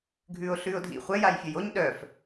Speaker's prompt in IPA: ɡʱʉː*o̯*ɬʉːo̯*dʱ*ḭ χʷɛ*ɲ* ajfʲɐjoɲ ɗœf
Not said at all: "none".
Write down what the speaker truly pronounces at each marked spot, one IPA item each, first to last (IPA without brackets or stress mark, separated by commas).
o̯, dʱ, j